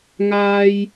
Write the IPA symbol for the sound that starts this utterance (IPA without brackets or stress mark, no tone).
ŋ